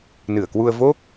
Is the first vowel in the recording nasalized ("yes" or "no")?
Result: no